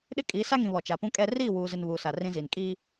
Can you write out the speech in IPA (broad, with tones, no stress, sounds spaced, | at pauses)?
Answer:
ɗ ɪ˦ kʼ iː˨˦ s a˦ ŋ ĩ˨ β ɔ˨ t͡ʃ a˨ p ũ˦ kʼ ɛ˦ r iː˦˨ w uː˨ z ɪ˨ n β uː˨ s a˨ r ĩ˦ z iː˨ n kʼ iː˦